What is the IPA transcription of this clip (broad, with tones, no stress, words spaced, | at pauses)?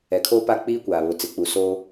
ɛ˨kʰoː˦pa˦ k͡piː˦kʷaː˨βʊ˨ t͡sɪ˨k͡pu˨soː˦